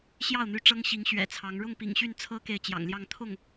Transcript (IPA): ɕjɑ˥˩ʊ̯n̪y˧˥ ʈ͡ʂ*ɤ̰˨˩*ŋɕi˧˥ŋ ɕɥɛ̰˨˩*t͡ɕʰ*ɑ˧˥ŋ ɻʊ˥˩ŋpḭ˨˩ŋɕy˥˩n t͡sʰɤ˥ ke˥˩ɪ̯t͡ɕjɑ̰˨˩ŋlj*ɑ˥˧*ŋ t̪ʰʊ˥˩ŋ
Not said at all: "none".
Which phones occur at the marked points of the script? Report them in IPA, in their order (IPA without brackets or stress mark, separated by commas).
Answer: ɤ˥, t͡sʰ, ɑ˥˧